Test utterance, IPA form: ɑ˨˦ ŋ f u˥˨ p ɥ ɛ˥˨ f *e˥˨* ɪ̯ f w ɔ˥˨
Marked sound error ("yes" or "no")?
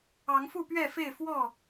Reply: no